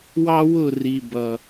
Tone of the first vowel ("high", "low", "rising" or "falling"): high